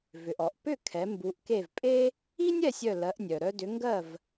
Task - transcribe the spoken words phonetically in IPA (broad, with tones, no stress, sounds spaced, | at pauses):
v ʏ˩ ʔ ɔ˩ ʔ p ʏ˥˩ kʰ ɛ˩˥ m b u˩˥ ʔ k e˥˩ v pʼ e˥ | i˥ nʲ ɛ˥˩ sʲ œ˥˩ l ɜ˩˥ ʔ nʲ œ˩ ɾ œ˧ d ʏ˩˥ ŋ ɡ ɜ˥˩ v